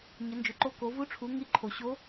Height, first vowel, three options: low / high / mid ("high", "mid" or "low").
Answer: mid